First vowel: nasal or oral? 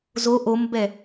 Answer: oral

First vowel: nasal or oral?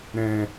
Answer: nasal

